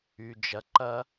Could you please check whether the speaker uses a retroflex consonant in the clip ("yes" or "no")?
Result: no